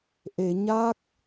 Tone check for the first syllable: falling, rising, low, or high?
low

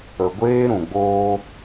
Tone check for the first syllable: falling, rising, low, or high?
low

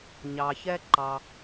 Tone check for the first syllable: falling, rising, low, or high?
low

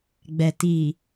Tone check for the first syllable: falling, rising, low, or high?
low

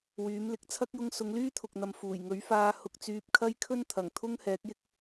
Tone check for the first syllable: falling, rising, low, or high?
rising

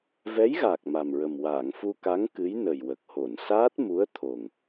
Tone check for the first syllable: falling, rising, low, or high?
rising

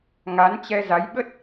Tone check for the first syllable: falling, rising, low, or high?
rising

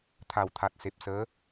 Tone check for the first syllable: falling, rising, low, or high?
low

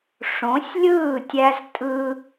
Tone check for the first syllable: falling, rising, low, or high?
rising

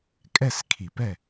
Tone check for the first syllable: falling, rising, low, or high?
falling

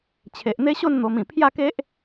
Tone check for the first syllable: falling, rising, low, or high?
low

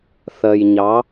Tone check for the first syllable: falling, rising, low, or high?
low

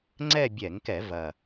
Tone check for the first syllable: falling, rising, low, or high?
falling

